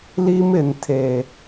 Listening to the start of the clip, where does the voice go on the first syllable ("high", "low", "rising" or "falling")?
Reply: high